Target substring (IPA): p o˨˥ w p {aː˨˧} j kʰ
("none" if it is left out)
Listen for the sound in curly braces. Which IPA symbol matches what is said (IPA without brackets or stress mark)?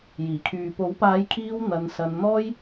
aː˨˧